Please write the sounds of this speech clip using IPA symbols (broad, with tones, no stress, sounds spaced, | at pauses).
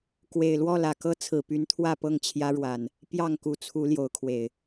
k w e˨˩ ɪ̯ l w ɔ˥˨ l ä˨˩ k ɤ˦ t͡sʰ ɹ̩˨˩ p y˨˦ n t̪ʰ w ä˥˨ p ɤ˥˨ ŋ t͡ɕʰ j ä˦ ɻ w a˨˩ n | p j ɑ˥˨ ŋ k u˨˩ t͡sʰ u˨˦ l j o˨˦ ʊ̯ kʰ w e˨˩ ɪ̯